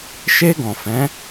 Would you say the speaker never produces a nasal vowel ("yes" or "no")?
no